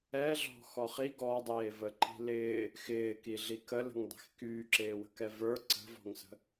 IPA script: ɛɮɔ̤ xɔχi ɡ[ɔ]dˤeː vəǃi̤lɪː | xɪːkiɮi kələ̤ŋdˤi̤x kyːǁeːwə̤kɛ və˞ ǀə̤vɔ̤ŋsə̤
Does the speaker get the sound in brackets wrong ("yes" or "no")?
no